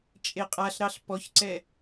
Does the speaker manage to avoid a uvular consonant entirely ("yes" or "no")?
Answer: no